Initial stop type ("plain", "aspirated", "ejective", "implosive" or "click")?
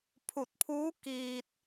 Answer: aspirated